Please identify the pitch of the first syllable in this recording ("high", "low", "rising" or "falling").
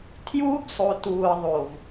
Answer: high